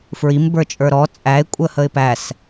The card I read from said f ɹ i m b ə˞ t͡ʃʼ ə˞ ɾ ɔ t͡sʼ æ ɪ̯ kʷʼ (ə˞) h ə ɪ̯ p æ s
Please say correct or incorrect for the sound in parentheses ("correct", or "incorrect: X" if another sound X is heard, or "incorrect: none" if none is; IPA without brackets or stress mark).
incorrect: ə